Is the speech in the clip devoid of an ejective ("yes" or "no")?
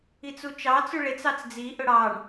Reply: yes